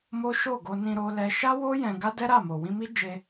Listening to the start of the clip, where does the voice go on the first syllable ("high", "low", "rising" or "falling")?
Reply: high